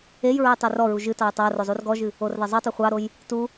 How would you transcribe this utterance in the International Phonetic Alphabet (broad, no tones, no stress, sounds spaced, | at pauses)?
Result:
e j ɹ ə j tˤ e r ɔ ɹ u ʒ ɨ t ɑ j tˤ a r o zˤ u r ɡ ɔ ʒ ɨ | o r ð ɑ zˤ o tˤ e χʷ ɑ ɾ o j | t u